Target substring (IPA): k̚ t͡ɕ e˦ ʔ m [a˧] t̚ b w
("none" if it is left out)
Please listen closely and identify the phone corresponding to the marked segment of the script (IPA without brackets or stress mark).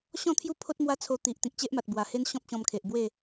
a˨